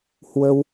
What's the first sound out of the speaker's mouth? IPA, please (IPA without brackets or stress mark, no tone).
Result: h